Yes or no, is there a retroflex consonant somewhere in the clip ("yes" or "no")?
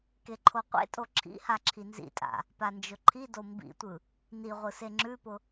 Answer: no